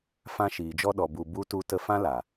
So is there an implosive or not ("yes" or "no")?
yes